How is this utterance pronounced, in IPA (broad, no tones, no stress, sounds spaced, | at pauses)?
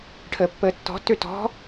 ʈʰ əː pː əː tː ɔ̤ tː ø t ɔ̤